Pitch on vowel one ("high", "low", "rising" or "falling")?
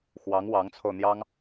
rising